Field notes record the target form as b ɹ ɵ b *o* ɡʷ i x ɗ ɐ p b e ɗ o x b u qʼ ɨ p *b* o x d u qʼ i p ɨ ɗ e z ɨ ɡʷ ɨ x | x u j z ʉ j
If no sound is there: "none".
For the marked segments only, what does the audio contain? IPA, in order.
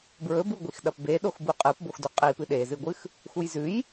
u, b

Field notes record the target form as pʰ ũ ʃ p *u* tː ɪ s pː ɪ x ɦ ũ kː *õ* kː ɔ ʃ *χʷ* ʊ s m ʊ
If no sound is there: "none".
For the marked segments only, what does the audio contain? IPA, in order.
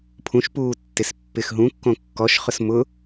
uː, õ, χ

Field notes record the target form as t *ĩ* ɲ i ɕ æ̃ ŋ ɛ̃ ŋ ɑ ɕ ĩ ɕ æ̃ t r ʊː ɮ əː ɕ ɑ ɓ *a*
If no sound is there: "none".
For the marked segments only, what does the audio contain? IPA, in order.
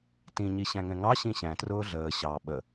ĩ, ə

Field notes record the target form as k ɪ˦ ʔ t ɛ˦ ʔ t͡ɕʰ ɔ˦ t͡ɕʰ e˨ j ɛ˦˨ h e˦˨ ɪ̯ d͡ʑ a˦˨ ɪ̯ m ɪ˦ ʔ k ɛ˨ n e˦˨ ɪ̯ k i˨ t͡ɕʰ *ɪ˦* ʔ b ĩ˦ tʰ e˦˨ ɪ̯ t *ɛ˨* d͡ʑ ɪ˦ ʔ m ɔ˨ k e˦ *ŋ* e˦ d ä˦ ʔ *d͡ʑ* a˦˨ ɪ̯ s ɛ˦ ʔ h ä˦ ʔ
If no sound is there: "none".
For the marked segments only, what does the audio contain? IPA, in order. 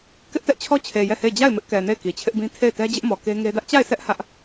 ɪ˦, ɛ˦, ŋ, t͡ɕ

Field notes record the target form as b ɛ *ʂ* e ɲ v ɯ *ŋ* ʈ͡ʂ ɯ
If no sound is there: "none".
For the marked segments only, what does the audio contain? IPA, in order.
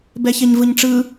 ç, ɲ

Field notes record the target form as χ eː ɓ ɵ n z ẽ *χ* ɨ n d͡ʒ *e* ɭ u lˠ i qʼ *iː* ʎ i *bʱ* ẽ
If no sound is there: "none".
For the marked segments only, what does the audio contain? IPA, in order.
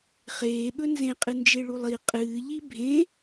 qʼ, e, ɨː, bʱ

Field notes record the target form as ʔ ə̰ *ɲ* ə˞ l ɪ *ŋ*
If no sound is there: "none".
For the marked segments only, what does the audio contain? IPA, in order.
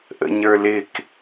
ɲ, k

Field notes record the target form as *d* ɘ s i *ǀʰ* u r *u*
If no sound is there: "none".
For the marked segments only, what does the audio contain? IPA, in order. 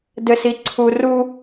d, ǀʰ, u

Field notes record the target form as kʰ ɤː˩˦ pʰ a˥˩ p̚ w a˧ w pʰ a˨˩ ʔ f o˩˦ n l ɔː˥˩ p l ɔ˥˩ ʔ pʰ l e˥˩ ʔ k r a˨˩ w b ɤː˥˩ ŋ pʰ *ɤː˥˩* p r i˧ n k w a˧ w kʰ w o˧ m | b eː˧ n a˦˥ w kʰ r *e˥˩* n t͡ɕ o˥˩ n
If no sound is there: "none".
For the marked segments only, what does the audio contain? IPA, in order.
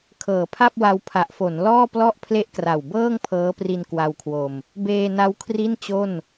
ɤː˦˥, i˥˩

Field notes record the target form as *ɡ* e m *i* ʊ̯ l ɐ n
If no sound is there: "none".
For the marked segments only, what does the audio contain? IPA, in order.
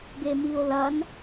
ɡ, i

